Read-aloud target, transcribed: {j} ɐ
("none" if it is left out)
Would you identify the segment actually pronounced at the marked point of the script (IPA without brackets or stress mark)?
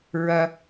ɹ